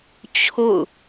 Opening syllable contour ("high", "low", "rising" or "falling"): falling